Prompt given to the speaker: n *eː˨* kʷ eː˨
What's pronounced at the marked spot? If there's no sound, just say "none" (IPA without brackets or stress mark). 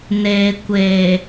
eː˨